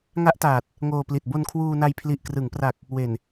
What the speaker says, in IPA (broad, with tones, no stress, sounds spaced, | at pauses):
ŋ a˦˥ ʔ t aː˨˩ t̚ | ŋ oː˧ p l i˨˩ t̚ b o˧ n kʰ w uː˧ n a˧ j pʰ l i˨˩ ʔ k r ɯ˩˦ ŋ p r a˨˩ k̚ | w e˨˩ n